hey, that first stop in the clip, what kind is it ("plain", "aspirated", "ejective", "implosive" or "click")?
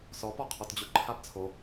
plain